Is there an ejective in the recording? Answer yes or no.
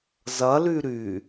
no